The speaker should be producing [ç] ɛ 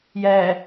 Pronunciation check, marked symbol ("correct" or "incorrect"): incorrect